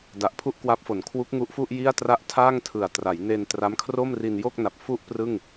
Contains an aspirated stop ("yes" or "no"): yes